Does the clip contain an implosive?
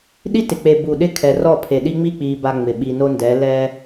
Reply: yes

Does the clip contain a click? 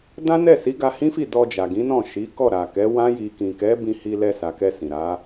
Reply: no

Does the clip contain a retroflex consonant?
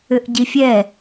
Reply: no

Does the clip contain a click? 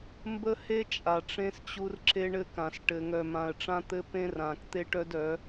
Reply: yes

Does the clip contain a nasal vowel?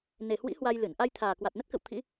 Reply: no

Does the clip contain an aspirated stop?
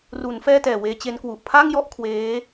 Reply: yes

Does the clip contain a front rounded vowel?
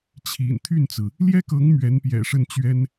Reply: yes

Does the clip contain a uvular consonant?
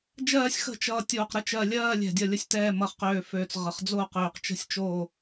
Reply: yes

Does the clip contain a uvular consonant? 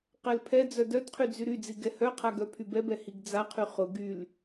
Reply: yes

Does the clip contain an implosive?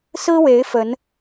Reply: no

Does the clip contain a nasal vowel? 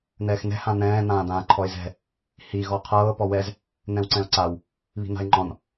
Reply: yes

